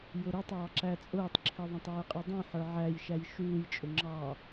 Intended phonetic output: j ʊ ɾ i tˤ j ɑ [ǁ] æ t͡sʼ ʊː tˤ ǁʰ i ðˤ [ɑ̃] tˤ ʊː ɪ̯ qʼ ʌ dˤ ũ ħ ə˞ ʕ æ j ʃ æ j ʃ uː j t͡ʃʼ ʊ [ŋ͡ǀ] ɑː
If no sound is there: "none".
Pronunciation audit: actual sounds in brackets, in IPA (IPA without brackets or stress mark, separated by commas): ǁ, ɑ̃, ŋ͡ǁ